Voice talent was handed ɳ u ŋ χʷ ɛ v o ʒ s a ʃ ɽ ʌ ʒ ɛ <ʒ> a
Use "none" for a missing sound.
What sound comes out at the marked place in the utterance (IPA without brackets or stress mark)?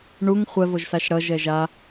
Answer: ʒ